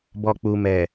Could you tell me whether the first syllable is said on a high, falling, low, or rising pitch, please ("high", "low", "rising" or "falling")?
low